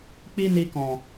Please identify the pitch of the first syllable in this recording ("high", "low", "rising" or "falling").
high